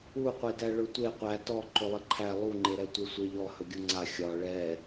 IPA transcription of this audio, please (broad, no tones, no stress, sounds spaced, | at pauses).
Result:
u qʷ e d æ ɭ ɵ tʷ e qʷ æ t ɔ ǃ ɵ lˠ ə ǃʰ æ lˠ u ŋ͡ǃ e ɾ ɛ tʷ e sʷ e ʎ ɔ h ɵ ɡʲ u ŋ͡ǀ a xʲ ɒ ɭ ɛ